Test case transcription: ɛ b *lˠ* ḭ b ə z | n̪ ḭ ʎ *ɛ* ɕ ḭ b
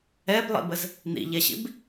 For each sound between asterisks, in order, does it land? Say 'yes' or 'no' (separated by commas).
yes, yes